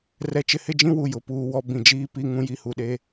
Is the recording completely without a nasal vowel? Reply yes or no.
no